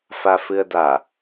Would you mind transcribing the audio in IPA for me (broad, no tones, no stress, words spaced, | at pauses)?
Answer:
fafɨə̯da